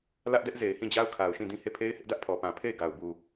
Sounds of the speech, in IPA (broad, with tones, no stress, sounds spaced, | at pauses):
l ä˦ ʔ d ɛ˦ ʔ z e˨ ɪ̯ h ĩ˦˨ d͡ʑ a˦ ʊ̯ kʰ a˨ ʊ̯ ʃ ĩ˦˨ d ĩ˦˨ h e˦˨ pʰ e˦ ɪ̯ h ɪ˦ ʔ d ä˦ ʔ pʰ ɔ˨ p ã˨ pʰ e˦˨ ɪ̯ ɡ a˨ ʊ̯ b u˨